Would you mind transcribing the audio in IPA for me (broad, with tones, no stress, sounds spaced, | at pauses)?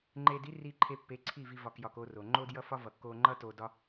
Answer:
ŋ͡ǃ e˧ d i˦ r i˧ ǃʰ e˧ pː e˨˦ ǀʰ i˦˨ v i˧ v ɒ˨ k j ɒ˨ k o˧ r o˨ ŋ͡ǃ o˦ d j ʌ˦ f ɒ˦ v ʌ˨ kː o˧ ŋ͡ǃ ʌ˦ t o˧ d ɒ˦